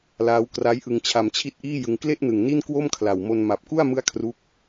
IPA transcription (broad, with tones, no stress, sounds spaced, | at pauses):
l aː˦˥ w k r a˦˥ j ʔ ɯ˧ ŋ t͡ɕʰ a˧ m t͡ɕʰ i˦˥ t̚ ʔ iː˥˩ j ɯ˧ ŋ k l e˥˩ ʔ n ɯ˨˩ ŋ n i˥˩ n k w o˥˩ m kʰ l a˨˩ w m o˧ n m a˨˩ p̚ k u˥˩ a̯ m ɯ˦˥ a̯ kʰ r u˦˥ k̚